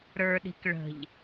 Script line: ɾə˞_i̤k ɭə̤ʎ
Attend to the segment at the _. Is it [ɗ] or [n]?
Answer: ɗ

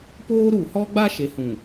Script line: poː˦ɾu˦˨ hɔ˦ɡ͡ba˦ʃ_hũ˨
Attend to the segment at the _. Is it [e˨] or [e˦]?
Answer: e˨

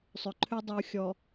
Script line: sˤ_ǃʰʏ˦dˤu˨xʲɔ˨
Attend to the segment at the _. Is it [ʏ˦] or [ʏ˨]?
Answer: ʏ˨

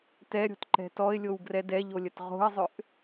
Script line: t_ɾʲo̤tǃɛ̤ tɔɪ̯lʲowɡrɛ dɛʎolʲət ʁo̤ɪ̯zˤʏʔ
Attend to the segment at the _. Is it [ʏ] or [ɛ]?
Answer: ɛ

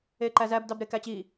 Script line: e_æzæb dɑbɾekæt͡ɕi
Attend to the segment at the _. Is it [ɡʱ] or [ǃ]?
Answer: ǃ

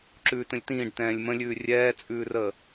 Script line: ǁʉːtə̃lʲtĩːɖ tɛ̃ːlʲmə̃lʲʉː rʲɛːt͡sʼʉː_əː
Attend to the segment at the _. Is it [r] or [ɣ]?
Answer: r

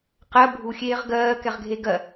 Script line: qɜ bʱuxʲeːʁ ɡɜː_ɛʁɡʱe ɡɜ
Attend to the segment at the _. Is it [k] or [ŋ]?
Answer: k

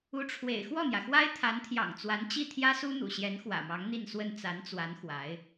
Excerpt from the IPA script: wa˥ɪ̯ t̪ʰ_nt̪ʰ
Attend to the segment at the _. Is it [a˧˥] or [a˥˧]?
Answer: a˧˥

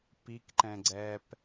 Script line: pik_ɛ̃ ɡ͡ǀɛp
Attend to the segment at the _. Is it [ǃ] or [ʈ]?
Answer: ǃ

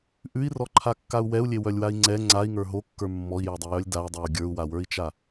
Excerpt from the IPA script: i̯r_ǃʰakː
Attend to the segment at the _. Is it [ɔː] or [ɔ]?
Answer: ɔ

